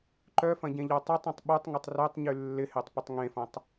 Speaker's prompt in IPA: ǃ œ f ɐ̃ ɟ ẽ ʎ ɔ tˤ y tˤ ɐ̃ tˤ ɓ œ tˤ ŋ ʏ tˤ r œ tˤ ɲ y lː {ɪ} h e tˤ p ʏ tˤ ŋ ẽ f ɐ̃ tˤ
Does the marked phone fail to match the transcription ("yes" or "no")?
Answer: no